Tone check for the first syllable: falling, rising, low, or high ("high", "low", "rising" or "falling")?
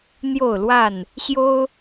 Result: falling